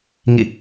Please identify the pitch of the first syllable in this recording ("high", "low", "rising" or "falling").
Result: falling